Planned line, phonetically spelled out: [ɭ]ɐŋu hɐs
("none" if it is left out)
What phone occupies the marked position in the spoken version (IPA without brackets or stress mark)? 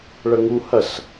ɭ